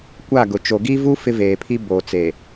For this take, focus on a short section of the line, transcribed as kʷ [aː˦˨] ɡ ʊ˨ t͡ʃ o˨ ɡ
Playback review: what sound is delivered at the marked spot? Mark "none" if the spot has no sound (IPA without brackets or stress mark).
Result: a˦˨